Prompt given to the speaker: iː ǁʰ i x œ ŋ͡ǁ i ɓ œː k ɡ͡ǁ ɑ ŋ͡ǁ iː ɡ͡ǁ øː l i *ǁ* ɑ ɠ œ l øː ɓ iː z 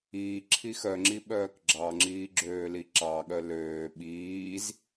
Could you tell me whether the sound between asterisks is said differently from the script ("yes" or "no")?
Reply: no